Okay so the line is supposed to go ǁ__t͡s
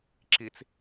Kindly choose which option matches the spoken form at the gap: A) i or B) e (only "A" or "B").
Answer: A